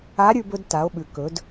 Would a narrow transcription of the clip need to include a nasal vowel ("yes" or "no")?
no